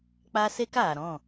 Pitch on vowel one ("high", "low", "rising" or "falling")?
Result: high